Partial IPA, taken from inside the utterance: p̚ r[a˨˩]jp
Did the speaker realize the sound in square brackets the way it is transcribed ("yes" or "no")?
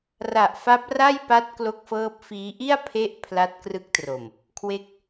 no